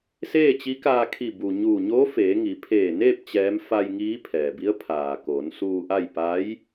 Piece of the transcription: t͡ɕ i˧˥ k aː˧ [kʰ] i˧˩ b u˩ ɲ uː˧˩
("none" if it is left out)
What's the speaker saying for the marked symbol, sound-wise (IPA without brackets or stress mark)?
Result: kʰ